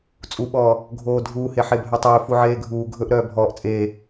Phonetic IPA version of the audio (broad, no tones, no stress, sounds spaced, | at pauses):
t͡sʼ u ɓ ɔː | ɡʱ oː dʱ uː h e ħ e bʱ œ tˤ ɵː f u ʕ eː ɡʱ uː ɡʱ ɵ ʔ ɾ œː bʱ ɔː ʔ t͡sʼ eː